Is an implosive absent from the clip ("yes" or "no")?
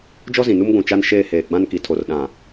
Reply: no